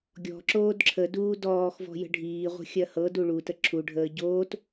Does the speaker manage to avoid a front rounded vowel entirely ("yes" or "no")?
yes